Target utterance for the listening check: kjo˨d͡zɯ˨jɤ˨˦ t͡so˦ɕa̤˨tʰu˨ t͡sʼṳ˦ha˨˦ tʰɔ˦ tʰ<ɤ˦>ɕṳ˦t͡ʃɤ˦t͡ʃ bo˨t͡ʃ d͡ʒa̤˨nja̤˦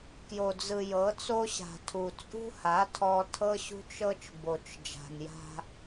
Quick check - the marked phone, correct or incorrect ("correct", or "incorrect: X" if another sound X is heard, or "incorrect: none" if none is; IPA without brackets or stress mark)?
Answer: correct